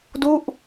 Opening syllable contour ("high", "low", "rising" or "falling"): falling